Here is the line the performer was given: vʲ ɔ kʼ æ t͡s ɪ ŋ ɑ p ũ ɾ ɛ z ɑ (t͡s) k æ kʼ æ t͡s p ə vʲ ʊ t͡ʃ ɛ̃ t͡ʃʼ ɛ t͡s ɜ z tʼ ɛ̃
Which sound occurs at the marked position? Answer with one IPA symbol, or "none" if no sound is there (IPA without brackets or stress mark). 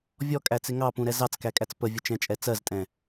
t͡s